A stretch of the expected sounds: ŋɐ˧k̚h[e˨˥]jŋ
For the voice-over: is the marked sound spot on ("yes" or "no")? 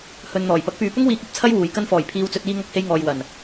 no